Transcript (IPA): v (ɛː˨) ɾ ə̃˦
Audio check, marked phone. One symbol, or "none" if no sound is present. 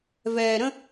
ɛː˨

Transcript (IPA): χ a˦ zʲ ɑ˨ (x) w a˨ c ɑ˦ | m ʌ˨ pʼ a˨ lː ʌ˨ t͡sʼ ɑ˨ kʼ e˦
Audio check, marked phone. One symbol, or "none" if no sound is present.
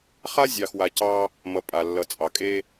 x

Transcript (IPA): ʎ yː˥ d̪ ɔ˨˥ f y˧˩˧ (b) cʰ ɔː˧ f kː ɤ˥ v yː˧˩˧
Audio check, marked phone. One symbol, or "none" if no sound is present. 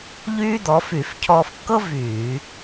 f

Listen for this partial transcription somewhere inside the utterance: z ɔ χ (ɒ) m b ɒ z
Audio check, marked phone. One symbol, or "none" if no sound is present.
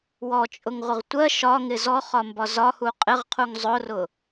ɒ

